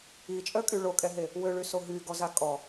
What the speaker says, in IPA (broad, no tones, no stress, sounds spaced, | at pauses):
i t͡ʃʼ œ kʼ y ɭ o kʼ ɛ ɦ e | w ø ɭ y s o ɦ y ɡ ɔ z a kʼ ɔ